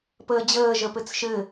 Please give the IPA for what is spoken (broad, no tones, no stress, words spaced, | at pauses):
pəːd͡ʑəː ʒəpɘt͡sʃɘ